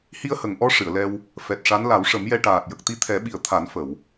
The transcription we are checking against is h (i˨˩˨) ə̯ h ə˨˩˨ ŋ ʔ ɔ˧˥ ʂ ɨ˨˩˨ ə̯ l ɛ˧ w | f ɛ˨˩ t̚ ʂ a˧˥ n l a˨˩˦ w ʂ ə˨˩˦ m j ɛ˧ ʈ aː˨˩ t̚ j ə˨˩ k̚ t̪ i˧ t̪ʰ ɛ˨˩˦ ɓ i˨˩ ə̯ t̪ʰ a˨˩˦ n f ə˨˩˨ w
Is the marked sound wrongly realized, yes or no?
yes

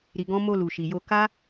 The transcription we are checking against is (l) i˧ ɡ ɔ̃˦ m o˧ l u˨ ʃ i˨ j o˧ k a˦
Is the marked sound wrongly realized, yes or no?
yes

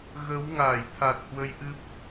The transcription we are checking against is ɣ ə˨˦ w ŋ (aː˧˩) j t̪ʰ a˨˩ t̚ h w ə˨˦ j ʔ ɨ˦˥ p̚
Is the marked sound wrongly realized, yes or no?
no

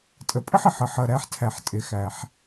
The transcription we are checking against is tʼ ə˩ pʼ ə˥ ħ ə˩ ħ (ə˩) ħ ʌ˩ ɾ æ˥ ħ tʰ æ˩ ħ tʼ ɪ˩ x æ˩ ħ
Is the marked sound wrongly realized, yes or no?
yes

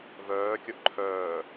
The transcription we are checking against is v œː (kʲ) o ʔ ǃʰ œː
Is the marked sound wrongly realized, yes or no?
no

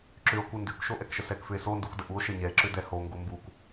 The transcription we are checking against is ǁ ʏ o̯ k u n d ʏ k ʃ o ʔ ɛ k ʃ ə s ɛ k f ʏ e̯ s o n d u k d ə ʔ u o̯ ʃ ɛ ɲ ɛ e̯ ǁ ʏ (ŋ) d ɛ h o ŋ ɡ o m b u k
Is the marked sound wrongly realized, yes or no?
yes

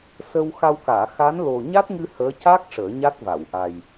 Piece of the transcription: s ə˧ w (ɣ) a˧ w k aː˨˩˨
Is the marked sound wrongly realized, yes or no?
yes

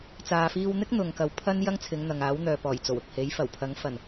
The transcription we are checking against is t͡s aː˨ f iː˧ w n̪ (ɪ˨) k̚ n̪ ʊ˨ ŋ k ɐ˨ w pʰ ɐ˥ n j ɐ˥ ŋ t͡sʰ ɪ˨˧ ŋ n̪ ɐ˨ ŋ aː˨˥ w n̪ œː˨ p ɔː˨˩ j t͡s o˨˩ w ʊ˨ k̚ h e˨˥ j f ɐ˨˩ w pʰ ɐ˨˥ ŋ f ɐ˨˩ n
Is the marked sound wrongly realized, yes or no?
yes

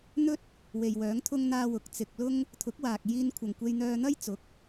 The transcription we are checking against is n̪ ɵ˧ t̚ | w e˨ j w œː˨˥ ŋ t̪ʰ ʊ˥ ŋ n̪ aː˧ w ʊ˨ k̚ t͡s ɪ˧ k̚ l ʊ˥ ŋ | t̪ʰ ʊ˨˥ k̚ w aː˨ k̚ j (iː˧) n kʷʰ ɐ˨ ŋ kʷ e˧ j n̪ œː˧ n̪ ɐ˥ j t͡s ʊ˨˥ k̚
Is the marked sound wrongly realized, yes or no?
no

